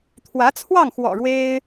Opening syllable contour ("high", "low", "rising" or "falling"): rising